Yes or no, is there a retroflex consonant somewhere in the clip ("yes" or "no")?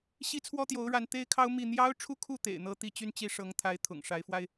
yes